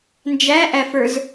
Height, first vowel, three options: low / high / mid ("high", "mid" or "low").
low